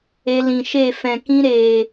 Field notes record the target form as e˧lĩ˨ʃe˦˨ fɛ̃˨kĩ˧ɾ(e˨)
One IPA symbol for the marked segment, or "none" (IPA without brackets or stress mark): eː˨